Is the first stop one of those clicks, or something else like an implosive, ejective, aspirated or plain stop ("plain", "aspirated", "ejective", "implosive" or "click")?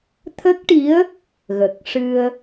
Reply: aspirated